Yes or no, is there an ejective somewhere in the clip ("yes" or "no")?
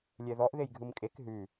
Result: yes